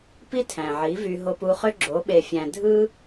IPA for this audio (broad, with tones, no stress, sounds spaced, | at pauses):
p i˦ tʰ æ̃˨ ʕ i˨˦ v y˧ ɦ o˧ p u˧ χ ø˦ ɡ͡ǁ o˨˦ ɓ e˨ fʲ æ̃˨ dʱ ɯ˦